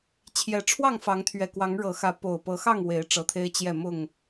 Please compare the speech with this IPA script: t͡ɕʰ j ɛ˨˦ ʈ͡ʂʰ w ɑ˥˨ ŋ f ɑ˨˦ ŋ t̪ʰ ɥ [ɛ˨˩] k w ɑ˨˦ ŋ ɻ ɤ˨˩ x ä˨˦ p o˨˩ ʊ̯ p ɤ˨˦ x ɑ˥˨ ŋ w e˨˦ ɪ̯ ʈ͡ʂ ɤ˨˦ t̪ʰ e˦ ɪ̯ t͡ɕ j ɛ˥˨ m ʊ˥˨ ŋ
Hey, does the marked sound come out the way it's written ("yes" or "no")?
yes